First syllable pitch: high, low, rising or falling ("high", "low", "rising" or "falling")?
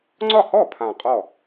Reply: falling